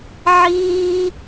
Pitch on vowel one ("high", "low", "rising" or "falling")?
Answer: high